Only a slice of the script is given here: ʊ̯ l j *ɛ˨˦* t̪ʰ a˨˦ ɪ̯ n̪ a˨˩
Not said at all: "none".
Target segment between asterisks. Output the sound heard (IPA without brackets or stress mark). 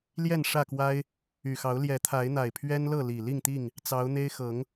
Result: ɛ˨˦